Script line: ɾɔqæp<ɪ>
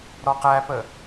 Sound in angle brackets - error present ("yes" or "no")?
yes